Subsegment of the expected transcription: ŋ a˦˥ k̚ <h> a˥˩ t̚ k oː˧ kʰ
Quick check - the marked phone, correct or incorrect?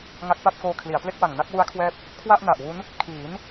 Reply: incorrect